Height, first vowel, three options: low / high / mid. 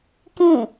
high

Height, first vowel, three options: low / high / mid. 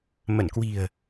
mid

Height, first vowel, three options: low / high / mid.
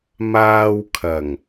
low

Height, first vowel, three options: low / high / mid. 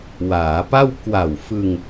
low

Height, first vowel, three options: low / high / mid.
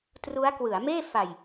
high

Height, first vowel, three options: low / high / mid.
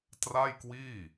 low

